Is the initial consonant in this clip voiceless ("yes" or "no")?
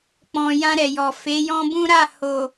yes